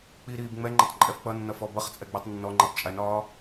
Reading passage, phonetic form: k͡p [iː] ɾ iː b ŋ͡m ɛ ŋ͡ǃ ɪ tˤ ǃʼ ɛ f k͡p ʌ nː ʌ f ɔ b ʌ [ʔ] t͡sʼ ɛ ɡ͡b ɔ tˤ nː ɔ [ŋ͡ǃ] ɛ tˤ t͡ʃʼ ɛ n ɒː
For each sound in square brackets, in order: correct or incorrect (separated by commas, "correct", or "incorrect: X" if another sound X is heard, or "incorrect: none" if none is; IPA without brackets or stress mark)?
incorrect: i, incorrect: χ, correct